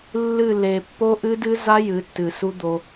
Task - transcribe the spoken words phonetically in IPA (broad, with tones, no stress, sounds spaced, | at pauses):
lː ɨ˦˨ l e˨ pː o˦ ʔ ɨ˦ d ɨ˦ z a˦ j ɨ˨˦ tː ɨ˨ s u˦ d̪ o˦